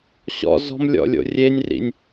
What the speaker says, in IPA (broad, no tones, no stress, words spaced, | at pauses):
ɕɔ̰ zɔ̤mlʲɔ̰lʲo̰ rʲenʲrḭnʲ